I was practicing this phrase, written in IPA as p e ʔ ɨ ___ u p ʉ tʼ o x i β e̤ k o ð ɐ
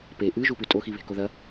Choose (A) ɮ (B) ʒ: B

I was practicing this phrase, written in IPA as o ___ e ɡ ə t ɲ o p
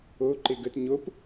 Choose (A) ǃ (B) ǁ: A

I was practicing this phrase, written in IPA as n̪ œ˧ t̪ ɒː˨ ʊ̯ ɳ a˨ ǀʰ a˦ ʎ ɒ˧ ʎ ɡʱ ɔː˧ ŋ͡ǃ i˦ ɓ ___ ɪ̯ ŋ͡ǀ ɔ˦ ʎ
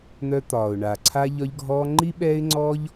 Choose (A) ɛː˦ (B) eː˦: A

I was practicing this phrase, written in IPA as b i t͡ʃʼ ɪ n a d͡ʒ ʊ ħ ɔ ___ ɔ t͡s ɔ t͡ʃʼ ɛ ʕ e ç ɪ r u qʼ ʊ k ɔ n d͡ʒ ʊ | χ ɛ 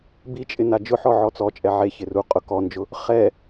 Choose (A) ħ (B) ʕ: B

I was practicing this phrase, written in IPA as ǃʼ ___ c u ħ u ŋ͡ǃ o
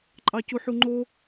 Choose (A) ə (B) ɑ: B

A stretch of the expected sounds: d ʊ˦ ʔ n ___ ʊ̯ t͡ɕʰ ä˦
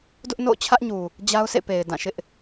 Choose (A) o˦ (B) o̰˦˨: B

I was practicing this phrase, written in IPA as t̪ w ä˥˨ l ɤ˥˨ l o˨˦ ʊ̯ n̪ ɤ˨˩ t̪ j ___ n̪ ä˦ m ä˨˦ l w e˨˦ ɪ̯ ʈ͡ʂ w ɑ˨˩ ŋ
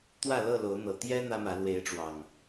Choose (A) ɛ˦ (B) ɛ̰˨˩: A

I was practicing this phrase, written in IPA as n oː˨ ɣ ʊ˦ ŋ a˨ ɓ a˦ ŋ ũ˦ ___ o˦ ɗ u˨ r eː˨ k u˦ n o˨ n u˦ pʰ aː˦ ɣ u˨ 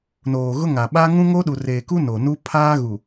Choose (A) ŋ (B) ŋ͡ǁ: A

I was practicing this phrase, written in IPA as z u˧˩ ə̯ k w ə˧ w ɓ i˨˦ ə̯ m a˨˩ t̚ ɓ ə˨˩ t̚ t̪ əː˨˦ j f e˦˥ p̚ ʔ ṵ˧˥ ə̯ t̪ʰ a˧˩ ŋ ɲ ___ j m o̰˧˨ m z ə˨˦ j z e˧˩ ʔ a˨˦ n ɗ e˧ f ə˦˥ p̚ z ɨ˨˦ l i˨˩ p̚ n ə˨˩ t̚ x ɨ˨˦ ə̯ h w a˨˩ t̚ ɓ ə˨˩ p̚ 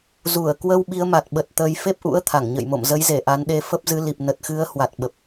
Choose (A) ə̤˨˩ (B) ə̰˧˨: B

